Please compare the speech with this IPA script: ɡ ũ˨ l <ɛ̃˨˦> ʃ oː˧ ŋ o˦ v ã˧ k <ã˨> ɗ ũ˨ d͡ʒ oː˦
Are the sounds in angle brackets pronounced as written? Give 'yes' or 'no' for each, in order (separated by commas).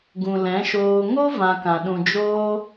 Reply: yes, yes